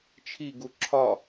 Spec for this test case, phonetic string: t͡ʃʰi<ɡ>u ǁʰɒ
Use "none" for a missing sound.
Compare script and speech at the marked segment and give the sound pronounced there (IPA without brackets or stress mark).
ɡ